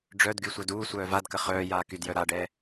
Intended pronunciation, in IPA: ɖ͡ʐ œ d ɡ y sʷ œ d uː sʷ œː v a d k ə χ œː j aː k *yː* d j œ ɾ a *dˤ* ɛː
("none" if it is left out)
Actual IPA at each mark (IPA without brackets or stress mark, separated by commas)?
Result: y, ɖ